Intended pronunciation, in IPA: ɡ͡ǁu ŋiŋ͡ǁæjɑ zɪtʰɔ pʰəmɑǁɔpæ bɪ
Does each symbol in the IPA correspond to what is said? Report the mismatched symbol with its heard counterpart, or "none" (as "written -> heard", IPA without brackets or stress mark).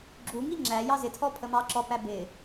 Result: none